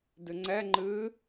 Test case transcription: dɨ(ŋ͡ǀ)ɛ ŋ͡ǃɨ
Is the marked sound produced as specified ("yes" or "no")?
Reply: yes